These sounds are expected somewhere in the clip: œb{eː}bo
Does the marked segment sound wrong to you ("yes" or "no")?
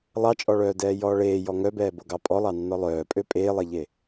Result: yes